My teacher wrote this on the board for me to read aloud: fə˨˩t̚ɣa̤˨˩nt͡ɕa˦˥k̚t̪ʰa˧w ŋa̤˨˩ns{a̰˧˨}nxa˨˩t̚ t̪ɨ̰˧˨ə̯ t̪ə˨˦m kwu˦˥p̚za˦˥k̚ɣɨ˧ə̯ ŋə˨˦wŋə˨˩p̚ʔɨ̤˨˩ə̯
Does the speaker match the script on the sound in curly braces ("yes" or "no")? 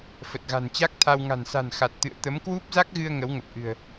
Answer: no